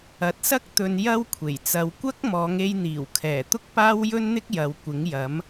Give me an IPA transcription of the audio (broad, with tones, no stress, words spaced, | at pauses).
ɐ˨˥t̚sɐ˥k̚ t̪ɵ˧njɐ˥wkʷʰe˨˩j t͡sɐ˨˧wkʷɐ˥k̚mɔː˨˧ŋ e˧jn̪iː˨˩wkʰɛː˨˩ t̪ʊ˥k̚paː˥wjɵ˥nn̪ɪ˥k̚ jɐ˨˧wkʷɪ˨˥ŋjɐ˨˥m